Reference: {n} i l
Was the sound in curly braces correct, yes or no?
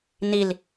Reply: yes